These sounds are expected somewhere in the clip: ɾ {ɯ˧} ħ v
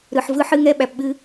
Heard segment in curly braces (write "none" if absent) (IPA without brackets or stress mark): ɯ˨